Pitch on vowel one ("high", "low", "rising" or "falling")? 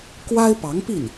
high